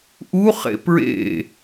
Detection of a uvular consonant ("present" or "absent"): present